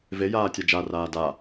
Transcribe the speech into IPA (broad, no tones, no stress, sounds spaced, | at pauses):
v e j aː tʲ a d͡ʒ a r aː d a